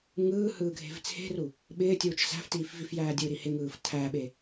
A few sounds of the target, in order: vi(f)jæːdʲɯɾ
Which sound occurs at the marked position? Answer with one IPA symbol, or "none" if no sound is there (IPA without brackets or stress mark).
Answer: f